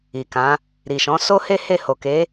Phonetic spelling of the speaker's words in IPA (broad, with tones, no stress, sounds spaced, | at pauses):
i˨ k ã˨˦ | ɾ i˨ ʃ ɔ̃˨˦ s o˦ h e˦ h e˦˨ h o˨ k e˨˦